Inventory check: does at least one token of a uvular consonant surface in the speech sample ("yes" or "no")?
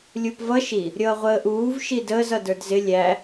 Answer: yes